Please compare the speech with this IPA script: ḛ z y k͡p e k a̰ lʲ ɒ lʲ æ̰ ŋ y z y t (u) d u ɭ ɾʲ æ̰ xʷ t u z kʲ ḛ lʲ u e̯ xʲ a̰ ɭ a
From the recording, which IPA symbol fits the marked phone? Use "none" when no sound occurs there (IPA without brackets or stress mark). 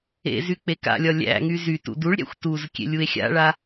ṵ